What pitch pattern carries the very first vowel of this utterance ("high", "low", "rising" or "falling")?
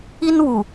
high